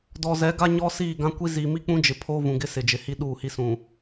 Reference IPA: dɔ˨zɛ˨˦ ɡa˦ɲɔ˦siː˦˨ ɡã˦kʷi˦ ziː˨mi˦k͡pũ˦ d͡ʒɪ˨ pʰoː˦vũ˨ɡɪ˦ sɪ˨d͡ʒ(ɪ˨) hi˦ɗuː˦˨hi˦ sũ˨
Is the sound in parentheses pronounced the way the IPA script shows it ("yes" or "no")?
yes